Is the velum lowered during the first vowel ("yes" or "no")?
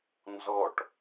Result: no